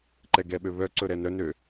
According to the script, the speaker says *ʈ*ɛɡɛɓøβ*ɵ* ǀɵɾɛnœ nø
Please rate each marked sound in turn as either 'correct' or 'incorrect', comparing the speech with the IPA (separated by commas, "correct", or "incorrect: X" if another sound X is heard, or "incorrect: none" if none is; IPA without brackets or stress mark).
incorrect: ǃ, incorrect: œ